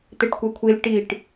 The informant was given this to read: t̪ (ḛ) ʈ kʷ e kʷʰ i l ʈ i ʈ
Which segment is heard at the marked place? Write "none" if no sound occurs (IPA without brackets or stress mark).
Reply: e